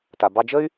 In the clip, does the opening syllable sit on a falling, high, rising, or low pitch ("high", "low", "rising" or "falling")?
low